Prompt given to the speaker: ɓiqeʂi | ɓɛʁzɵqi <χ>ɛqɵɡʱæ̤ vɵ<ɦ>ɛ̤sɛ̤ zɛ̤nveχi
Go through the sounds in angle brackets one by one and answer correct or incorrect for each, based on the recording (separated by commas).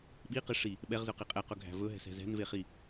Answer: incorrect, correct